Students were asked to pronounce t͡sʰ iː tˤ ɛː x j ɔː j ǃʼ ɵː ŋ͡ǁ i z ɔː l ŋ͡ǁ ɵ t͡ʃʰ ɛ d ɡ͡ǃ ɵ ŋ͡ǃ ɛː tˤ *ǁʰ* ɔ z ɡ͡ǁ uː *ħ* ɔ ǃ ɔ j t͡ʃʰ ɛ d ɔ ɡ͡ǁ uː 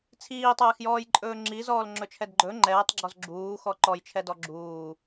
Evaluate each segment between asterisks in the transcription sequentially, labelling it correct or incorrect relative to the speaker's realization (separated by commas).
incorrect, incorrect